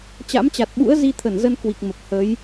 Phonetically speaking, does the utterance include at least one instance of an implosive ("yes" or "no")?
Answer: yes